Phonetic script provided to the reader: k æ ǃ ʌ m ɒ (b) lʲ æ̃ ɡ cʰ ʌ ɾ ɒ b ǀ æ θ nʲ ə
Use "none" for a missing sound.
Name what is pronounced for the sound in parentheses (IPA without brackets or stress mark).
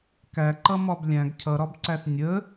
b